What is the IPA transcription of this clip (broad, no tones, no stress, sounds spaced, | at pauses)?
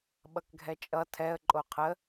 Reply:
ɓ ʌ k ɡʱ ɛ t͡ʃʼ ʌ tʰ ɛ ə̯ ǃʼ o qʰ ə